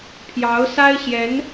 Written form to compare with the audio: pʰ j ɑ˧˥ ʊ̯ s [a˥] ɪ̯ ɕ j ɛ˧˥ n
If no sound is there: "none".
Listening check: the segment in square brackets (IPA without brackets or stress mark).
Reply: a˥